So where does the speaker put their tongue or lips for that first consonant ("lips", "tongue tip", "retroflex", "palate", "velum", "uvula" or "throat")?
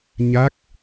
palate